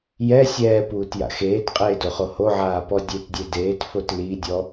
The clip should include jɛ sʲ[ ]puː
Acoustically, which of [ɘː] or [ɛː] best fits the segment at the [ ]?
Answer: ɛː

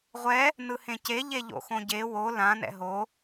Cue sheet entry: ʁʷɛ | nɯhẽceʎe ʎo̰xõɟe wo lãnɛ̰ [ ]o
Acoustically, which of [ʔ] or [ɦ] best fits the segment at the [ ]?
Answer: ɦ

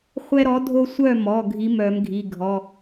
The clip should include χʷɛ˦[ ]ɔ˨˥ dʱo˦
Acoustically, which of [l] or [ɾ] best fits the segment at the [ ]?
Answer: ɾ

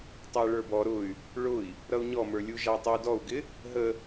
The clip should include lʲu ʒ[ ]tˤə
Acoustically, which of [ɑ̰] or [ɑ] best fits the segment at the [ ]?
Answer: ɑ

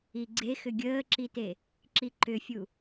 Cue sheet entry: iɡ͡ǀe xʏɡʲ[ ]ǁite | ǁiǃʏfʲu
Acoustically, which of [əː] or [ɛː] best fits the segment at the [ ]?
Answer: əː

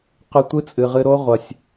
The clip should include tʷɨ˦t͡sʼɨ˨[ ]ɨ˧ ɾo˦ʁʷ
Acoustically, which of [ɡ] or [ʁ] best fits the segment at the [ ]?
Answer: ʁ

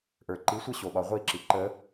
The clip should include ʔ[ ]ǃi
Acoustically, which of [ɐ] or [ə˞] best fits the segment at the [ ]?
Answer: ə˞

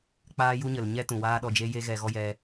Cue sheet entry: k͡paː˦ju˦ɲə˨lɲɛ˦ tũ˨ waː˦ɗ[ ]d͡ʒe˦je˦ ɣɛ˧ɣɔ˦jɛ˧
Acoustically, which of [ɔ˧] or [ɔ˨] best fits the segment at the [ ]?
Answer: ɔ˧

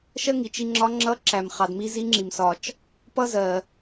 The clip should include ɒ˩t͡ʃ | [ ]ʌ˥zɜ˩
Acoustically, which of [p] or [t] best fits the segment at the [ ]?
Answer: p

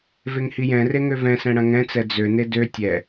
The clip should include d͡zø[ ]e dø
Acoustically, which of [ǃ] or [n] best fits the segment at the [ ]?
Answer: n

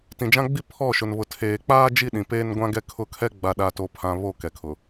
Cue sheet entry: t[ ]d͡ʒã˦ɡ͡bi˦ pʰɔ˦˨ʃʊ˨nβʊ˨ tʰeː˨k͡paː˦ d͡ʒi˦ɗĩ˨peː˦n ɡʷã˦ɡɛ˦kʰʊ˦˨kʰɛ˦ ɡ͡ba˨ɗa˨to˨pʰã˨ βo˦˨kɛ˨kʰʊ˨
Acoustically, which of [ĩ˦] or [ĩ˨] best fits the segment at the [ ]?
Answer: ĩ˨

